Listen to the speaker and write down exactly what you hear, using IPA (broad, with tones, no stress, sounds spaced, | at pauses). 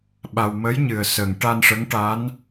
ɓ a˧ w m ə˧˥ j ɲ ɨ˨˩ ə̯ s ə˨˩ ŋ ʈ a˧ n ʂ ə˧˥ ŋ ʈ a˧˥ n